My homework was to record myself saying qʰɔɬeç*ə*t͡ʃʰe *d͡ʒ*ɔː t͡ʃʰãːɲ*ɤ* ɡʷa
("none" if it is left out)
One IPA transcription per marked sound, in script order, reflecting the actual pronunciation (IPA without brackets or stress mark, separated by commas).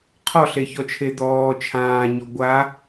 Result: ɔ, d̪, ɔ